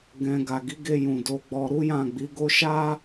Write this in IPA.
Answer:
ɡɛ̃˧ ɡa˨ɡi˨˦ɡe˧ jũ˨do˨˦ɡ͡bɔ˧ ɾu˦jã˦˨ɡ͡bi˨˦ɡo˦ ʃa˦

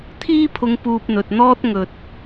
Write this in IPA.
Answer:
t̪ʰiː˥pʰʊ˧ŋ puː˧p̚n̪ɵ˨t̚n̪ɔː˥t̚ ŋɵ˧t̚

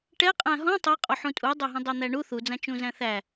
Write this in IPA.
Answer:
ʈɛ qʼæ̃ɦɔ̃ tˤæqʼo ħũtʼudˤaɦũ dˤan̪æɳu θud͡zã t͡ʃũzæ̃θæ

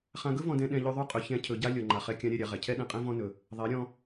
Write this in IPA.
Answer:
χã˧ɡɵ˦vɔ̃˧dɛ̃˧ ɗɛ̃˧ʎʉ˧ ðˤʉ˦˨qʼɵ˧ çɛ̃˧ cʰɵ˧ ɟa˦ lʲɔ˨ŋ͡ǃa˨χɛ˧kʲã˧ ɾʲɛ˦˨ɾʲa˧ʁɛ˨ cʰɛ˦ɗɛ̃˧qʼɛ̃˦ vɔ̃˦nɵ˧ | ðˤɛ˨˦ ɾʲɔ̃˦

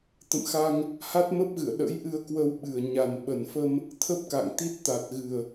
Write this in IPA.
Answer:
t̪ə̰˧˨mxa˧ŋ | ha˦˥t̚mə˦˥p̚ɣɨ̰˧˨ə̯ ɗə̰˧˥jʔɨ˧ə̯kwə˧wɓɨ˨˩ə̯ ɲa˨˩n ɓə˨˩nfə˧m | t̪ʰə˦˥p̚ka̰˧˨ŋt̪i˦˥t̚t̪a˨˩t̚ ɣɨ˨˩ə̯

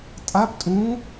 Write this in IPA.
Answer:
tʼap tʼũ

